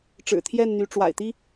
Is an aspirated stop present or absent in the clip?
present